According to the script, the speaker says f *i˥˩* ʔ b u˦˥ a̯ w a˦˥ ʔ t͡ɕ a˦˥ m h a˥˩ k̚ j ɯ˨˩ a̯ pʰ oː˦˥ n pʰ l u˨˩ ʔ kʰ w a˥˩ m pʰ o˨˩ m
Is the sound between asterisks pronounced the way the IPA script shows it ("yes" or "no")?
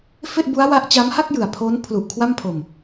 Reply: no